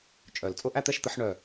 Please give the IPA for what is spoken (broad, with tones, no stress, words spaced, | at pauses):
t͡ʃʼœ˨˩˦l t͡sʼʊ˥˨ʔæ˥˨t̪ɛ˥˨ʃt̪ə˨˦ħ ɳœ˧˩